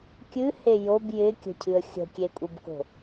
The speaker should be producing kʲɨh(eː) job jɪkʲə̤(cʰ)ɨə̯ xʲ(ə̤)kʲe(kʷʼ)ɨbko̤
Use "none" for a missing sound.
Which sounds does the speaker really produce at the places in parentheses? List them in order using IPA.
e, cʰ, ə̤, kʷʼ

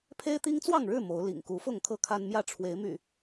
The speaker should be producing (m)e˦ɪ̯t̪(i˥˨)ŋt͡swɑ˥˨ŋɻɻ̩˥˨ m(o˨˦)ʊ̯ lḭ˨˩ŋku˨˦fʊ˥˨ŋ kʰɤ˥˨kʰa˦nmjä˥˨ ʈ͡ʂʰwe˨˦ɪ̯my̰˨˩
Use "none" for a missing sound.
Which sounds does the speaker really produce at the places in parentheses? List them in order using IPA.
pʰ, i˦, o˨˦

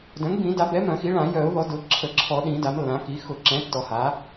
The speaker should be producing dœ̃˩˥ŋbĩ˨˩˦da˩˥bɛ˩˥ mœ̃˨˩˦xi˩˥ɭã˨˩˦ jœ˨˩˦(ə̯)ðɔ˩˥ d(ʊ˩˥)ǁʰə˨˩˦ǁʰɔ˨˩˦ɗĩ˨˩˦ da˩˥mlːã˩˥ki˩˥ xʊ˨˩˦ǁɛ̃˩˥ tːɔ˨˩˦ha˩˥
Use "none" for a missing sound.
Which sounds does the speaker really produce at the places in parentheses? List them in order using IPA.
ʊ̯, ʊ˩˥

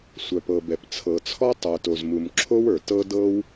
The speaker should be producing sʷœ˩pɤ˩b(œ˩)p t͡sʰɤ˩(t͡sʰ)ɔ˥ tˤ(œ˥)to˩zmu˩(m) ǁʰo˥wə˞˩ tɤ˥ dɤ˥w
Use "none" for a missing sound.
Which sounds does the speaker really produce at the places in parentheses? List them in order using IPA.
ɛ˩, t͡sʰ, œ˩, m

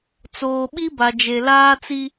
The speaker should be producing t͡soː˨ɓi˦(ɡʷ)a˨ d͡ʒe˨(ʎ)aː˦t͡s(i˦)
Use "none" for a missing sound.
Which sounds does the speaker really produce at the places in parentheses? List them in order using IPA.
b, l, i˦

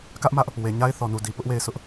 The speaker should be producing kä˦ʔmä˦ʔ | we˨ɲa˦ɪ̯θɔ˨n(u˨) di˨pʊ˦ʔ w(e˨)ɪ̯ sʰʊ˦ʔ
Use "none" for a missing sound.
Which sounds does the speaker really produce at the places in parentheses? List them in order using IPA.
u˨, e˦˨

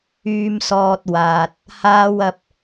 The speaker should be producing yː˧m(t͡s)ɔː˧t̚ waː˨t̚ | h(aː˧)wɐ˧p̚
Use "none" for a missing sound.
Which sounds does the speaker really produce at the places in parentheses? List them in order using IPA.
s, aː˧

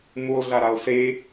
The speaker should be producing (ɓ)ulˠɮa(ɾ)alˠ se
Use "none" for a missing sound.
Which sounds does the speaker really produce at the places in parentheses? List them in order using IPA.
m, ɾ

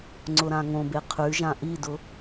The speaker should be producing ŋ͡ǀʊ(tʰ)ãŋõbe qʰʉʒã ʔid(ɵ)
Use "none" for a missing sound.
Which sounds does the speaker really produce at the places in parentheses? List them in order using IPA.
ɾ, ʊ

